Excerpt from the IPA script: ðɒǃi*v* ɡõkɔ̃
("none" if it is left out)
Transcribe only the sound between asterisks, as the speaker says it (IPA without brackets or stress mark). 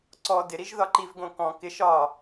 v